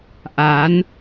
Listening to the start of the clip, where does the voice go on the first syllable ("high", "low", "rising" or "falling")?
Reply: rising